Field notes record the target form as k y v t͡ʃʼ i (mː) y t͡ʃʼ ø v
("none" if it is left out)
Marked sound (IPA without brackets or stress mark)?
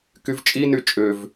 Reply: n